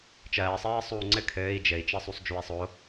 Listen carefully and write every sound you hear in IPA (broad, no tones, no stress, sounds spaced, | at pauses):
t͡ʃ ɜː sˤ ɜː sˤ uː ŋ͡ǀ ɘ kʰ ɘː i̯ d͡ʒ ɘ i̯ t͡ʃ ɜ sˤ u sˤ d͡ʒ u i̯ sˤ o